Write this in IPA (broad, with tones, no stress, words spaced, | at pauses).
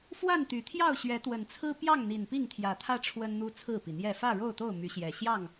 fwa˥˨n t̪y˨˩t̪ʰjɑ˥˨ʊ̯ ɕɥɛ˨˦t̪wə˨˩nt͡sʰɹ̩˦ pjɑ˥˨ŋn̪i˨˩n pi˥˨ŋt̪ʰjä˨˦t̪ʰä˦ ʈ͡ʂʰwə˦nn̪u˦ t͡sʰɹ̩˥˨pi˩n̪jɛ˥˨ fä˥˨ɻo˥˨ʊ̯t̪o˥˨ʊ̯ my˨˦ɕjɛ˨˩ ɕjɑ˥˨ŋ